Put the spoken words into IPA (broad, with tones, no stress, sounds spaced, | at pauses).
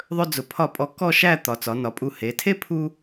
ðˤ ɵ˧ d͡z ʊ˩˧ pʰ ɒ˧˩ pʼ ɔ˧ k ɔ˥˧ ʃ æ˥˧ t̪ ɒ˩˧ t͡s ɒ˩˧ n ɒ˩˧ pʼ u˧˩ h e˩˧ tʰ e˥ pʰ u˥